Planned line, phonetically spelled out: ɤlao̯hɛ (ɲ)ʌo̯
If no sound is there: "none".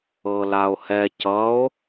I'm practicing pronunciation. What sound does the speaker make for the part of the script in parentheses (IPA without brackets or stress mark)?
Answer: c